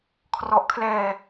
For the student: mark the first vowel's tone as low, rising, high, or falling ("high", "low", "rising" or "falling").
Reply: low